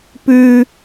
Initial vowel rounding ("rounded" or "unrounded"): rounded